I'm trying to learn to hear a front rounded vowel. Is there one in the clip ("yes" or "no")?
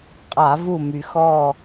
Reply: yes